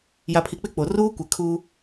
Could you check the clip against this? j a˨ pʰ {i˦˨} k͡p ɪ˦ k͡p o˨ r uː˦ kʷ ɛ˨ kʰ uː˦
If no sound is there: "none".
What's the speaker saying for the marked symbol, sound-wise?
i˨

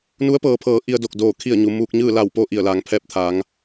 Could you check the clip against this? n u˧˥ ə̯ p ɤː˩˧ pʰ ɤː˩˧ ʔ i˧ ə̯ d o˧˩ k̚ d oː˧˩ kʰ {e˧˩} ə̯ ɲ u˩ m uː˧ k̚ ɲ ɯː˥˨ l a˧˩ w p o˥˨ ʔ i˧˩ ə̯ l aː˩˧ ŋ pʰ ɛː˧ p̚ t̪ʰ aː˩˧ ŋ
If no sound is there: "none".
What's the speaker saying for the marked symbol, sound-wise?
i˧˩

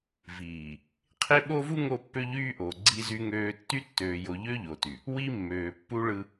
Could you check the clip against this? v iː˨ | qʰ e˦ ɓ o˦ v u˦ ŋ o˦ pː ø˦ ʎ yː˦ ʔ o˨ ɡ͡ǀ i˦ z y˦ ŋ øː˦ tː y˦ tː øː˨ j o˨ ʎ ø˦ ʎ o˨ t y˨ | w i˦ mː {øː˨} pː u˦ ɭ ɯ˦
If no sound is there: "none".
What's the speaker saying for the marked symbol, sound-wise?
øː˨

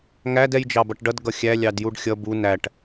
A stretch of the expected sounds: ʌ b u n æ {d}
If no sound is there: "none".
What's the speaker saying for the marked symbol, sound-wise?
ʈ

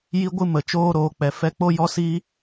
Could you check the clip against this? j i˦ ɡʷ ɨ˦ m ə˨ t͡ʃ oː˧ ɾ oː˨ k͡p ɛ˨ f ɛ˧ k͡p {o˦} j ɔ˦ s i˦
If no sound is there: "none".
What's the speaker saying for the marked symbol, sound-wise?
o˦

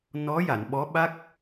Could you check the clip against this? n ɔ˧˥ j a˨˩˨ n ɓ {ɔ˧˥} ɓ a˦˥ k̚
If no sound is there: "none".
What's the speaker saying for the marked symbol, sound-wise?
ɔ˧˥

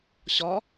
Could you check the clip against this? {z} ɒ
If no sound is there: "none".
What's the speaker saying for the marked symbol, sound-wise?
ɕ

